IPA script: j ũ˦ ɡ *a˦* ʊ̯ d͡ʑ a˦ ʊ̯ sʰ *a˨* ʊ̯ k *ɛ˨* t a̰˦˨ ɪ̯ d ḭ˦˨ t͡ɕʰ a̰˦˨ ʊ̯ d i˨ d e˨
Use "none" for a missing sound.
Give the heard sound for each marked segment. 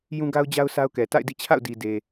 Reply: a˦, a˦, ɛ˨

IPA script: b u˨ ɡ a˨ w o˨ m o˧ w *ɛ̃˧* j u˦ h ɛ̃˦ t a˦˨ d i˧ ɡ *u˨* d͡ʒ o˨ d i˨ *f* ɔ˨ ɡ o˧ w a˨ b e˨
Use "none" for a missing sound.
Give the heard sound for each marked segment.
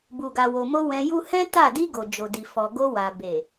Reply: ɛ̃˧, o˨, f

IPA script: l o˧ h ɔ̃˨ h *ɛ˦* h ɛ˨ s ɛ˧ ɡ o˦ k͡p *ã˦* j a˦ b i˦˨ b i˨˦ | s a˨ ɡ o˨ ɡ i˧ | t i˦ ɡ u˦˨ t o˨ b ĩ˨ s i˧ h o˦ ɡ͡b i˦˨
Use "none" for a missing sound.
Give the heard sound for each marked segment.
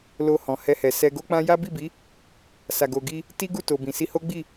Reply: ɛ˧, ã˦

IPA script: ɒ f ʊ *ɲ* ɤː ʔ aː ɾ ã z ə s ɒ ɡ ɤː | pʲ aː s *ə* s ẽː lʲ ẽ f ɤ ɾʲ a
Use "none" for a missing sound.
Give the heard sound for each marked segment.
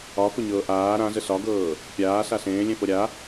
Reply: ɲ, a

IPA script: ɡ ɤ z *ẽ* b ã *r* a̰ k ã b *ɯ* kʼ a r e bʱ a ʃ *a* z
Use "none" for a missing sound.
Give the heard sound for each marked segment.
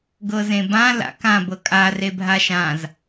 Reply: ẽ, l, ɤ, ã

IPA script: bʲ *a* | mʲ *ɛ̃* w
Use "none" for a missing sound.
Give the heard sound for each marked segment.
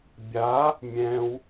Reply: a, ɛ̃

